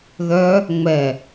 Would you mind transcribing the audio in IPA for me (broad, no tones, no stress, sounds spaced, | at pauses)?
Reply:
ð œ | ŋ͡m ɛ